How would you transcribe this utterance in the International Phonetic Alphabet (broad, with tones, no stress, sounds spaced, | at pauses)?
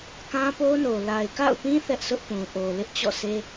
k ã˦ p o˦ n o˨ l a˨ ɪ̯ k a̰˦˨ ʊ̯ p ĩ˦ θ ɛ˦ ʔ s ʊ˦ ʔ p ũ˨ ʔ o˨ l ɪ˦ ʔ t͡ɕ ɔ̰˦˨ s e˦